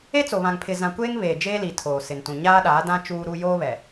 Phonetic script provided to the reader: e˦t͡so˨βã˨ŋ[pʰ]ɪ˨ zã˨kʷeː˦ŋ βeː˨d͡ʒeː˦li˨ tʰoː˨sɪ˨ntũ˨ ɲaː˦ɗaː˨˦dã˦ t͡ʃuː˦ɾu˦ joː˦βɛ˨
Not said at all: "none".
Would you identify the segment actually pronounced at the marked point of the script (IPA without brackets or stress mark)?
pʰ